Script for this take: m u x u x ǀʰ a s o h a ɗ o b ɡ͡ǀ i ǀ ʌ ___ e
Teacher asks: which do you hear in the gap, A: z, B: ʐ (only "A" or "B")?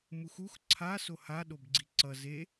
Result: A